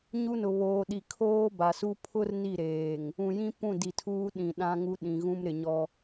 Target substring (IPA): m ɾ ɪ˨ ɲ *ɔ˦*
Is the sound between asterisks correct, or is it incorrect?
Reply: correct